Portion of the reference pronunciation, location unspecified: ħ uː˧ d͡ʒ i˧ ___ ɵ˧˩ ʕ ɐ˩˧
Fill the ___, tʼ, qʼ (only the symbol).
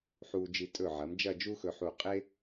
tʼ